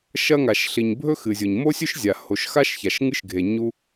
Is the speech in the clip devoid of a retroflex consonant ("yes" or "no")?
yes